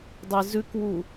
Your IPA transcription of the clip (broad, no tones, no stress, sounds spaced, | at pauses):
dˤ ɪ z ʉ k w u